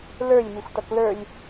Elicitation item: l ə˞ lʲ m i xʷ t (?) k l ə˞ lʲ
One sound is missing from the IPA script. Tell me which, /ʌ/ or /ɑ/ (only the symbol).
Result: ʌ